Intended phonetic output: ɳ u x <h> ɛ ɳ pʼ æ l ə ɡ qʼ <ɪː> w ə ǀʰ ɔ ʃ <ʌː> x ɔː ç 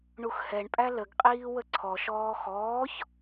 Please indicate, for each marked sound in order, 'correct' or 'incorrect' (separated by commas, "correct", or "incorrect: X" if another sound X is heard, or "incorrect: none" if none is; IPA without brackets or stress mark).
correct, incorrect: iː, incorrect: ɔː